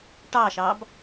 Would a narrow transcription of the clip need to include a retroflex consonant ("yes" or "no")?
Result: yes